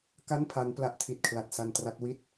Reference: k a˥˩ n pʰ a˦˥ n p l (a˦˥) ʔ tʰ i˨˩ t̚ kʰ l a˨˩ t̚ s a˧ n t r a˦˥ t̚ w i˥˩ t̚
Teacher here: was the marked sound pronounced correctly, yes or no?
yes